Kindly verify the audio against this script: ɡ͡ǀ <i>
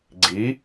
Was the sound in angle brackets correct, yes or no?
yes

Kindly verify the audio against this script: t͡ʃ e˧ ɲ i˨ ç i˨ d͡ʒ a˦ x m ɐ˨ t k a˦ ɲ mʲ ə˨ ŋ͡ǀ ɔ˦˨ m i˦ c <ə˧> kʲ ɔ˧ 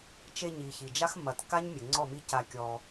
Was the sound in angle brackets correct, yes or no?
no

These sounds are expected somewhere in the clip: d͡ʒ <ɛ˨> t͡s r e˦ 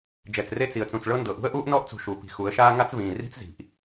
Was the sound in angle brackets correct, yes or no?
yes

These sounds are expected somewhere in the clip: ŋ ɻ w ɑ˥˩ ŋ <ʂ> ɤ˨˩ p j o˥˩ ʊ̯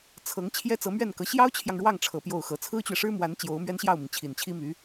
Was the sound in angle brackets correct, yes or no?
no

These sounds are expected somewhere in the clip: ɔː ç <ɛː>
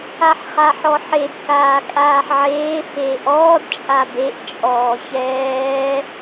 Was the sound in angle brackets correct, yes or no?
yes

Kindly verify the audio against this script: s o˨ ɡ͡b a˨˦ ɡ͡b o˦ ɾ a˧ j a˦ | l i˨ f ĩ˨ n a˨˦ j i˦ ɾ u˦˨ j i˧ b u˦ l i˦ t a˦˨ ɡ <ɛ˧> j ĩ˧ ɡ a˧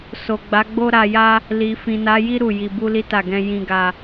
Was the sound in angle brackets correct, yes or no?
no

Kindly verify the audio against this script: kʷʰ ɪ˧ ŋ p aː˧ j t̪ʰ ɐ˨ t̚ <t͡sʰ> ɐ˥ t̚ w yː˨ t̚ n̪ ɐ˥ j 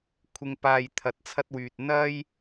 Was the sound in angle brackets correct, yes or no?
yes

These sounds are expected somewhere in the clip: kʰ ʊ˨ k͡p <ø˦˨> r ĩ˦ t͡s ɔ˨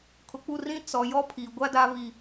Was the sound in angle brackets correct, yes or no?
no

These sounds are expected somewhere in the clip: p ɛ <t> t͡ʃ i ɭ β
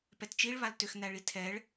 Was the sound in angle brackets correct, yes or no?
yes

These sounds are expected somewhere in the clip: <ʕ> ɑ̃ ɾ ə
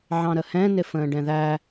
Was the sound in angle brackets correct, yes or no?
yes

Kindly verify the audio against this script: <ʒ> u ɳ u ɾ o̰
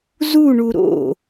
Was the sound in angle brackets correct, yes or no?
no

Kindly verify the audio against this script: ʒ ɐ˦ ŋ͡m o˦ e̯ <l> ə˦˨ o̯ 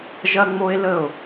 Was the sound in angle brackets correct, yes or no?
yes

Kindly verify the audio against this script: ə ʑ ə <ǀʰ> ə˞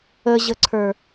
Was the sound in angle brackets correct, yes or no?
yes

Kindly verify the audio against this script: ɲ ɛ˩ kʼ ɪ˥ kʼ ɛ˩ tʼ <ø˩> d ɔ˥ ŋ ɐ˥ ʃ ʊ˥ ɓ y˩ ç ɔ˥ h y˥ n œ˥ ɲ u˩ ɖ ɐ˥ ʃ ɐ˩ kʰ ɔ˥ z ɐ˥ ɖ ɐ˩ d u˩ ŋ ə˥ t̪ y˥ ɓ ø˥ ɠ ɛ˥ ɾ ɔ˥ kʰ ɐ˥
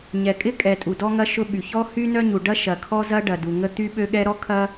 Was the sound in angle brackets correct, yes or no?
no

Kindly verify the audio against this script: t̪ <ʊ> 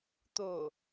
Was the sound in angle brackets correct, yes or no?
yes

